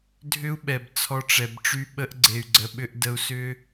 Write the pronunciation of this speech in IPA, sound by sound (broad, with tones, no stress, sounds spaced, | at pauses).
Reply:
dʱ ʏ˦ u̯ ɓ ɛ˨ b t͡sʰ ɔ˧ ʈ͡ʂ ɛ˨ b ʈ͡ʂ y˧ ɓ ə˧ ʔ ɡ͡ǀ e˨ y̯ ɡ͡ǀ ə˨ ɓ ʏ˧ ʔ d ə˧ u̯ s ʏ˦